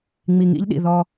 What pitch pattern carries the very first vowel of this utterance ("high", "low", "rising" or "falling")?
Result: low